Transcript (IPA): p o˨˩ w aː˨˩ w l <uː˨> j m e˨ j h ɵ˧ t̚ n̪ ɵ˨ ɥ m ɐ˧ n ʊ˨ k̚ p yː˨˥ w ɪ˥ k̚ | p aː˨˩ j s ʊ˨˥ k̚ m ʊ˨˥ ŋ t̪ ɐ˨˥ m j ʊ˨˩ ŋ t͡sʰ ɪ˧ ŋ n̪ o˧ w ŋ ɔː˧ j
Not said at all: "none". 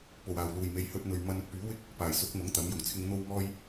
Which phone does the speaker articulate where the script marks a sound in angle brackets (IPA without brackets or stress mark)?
uː˨˩